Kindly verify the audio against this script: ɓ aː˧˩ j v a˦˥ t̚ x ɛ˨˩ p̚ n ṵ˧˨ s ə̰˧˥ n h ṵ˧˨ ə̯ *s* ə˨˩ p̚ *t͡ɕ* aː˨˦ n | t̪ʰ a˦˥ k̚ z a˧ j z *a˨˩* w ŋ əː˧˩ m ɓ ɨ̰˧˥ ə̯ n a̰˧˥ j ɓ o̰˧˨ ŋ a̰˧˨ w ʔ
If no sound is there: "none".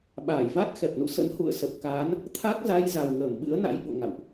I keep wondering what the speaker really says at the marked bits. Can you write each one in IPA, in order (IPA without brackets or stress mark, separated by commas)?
s, k, a˨˩